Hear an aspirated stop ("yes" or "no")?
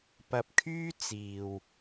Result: yes